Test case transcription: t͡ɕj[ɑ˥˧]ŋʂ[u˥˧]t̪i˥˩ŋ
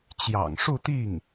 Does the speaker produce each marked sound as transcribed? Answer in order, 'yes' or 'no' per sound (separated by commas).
no, yes